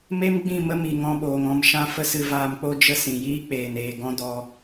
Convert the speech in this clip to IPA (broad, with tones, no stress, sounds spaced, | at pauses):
m e˦ m ɡ͡b ĩ˦˨ m ə˦ m i˨ ŋ ɔ̃˧ ɓ oː˨ ŋ ɔ̃˧ m ʃ ã˦ f ə˦ s ɨ˧ v aː˧ m k͡p o˦ d͡ʒ ə˦ s ĩ˨ j iː˦ k͡p eː˨ n eː˨ ɡ ɔ̃˦ d ɔ˧